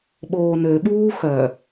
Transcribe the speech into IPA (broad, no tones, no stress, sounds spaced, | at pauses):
ɓ oː n ø ɓ uː x œ